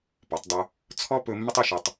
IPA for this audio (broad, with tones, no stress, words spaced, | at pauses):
pɔ˩˧tˤdˤɵ˧ | t͡sʰɔ˥ pɵ˧ mːə˥tˤɵ˥˧ʃɔ˧tˤ